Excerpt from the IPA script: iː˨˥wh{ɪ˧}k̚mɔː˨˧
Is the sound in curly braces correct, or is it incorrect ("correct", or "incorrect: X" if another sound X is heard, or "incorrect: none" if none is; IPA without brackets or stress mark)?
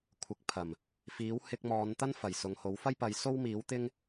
correct